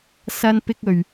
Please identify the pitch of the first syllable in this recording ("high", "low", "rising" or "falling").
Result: high